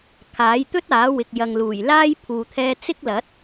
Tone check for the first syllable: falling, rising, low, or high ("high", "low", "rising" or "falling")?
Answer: rising